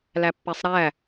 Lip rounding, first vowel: unrounded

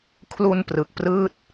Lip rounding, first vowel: rounded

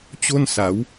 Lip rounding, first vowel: rounded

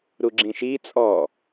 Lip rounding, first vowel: rounded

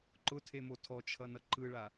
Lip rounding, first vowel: rounded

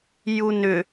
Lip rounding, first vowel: rounded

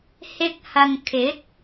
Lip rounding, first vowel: unrounded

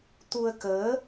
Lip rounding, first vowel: rounded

